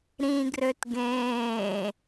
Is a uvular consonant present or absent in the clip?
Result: absent